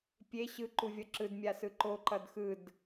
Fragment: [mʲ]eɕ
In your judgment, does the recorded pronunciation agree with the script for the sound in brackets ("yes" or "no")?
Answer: no